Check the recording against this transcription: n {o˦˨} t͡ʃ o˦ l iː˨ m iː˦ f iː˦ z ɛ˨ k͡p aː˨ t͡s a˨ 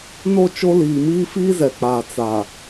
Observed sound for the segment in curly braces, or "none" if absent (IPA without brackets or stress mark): o˦˨